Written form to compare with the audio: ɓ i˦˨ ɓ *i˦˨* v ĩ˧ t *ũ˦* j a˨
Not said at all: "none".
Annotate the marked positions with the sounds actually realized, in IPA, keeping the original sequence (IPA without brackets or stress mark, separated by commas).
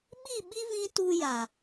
i˦, u˦